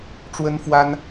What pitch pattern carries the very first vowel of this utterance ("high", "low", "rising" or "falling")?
high